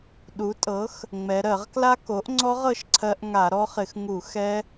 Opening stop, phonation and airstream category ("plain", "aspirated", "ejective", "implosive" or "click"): implosive